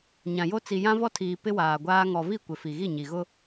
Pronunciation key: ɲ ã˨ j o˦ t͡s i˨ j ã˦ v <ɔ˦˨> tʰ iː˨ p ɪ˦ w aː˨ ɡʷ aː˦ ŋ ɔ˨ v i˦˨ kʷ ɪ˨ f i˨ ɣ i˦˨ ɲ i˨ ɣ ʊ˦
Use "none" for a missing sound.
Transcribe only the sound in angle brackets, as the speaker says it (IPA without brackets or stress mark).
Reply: ɔ˦